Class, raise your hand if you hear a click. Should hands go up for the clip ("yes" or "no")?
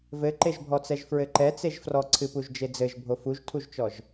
yes